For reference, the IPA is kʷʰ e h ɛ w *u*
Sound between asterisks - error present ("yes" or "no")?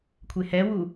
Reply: no